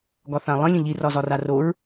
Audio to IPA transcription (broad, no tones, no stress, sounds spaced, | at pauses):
ɡ ɒ θ ã lˠ ə̃ lʲ ə̃ ʎ i r ɒ z ɒ r a r o ɹ